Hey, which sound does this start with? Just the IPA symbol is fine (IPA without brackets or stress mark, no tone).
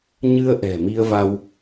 ɲ